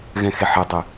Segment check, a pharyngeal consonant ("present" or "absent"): present